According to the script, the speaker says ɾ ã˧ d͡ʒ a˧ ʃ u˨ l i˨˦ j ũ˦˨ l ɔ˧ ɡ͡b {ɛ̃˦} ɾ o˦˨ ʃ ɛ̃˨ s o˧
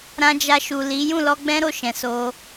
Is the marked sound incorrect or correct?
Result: correct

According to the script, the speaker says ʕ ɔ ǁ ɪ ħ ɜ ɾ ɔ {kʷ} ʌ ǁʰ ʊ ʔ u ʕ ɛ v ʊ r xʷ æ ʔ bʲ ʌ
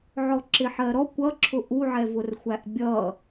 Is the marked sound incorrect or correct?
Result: correct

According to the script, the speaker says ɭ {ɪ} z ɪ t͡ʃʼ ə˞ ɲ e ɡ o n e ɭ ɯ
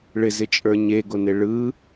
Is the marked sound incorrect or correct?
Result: correct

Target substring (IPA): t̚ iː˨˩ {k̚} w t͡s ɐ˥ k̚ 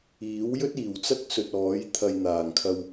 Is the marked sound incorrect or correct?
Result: incorrect: none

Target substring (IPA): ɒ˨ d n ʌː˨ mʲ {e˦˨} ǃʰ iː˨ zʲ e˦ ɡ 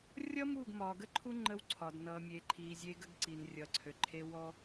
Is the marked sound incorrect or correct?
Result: incorrect: e˨˦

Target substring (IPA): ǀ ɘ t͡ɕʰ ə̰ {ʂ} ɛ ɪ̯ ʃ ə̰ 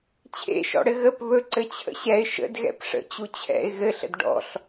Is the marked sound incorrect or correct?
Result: incorrect: ɕ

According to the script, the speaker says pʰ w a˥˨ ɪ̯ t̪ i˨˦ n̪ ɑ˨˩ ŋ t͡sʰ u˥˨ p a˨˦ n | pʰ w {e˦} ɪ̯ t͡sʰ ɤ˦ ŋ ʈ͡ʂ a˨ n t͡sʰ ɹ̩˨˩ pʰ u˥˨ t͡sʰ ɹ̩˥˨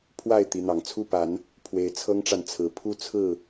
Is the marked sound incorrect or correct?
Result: incorrect: e˨˦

